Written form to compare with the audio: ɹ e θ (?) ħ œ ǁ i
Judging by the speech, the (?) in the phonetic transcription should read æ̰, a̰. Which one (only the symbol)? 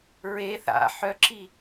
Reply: a̰